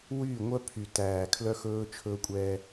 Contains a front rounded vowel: yes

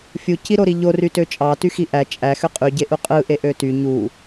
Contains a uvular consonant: yes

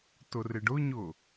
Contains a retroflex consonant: yes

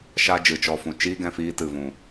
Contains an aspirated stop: no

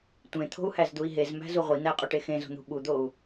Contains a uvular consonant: yes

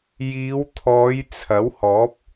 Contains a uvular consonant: no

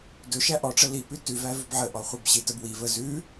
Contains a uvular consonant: yes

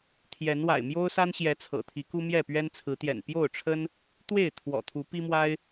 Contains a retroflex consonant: yes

